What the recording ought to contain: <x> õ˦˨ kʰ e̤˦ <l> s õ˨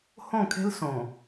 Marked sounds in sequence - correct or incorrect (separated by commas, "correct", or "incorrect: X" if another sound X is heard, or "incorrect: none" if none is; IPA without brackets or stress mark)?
incorrect: h, correct